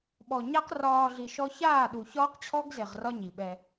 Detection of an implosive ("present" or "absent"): present